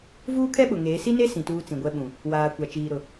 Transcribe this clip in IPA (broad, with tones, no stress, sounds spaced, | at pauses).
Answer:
v uː˦ kʰ ɛ˦ ɓ ʊ˨ ŋ eː˨˦ s i˦ n e˦ s ĩ˨ t uː˦ t͡s ĩ˨ ɡʷ ɛ˦ ɓ ũ˨ | w aː˨ kʷ a˨ t͡ʃ iː˨ ɾ ʊ˨